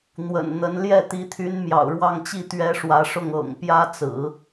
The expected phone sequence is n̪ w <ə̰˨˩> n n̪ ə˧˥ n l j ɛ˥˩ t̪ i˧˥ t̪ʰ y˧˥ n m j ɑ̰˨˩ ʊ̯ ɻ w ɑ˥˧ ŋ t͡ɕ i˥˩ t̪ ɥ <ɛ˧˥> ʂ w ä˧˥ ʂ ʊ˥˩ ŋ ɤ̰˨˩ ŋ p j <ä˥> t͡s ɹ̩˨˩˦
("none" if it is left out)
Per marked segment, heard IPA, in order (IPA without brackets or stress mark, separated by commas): ə̰˨˩, ɛ˥, ä˥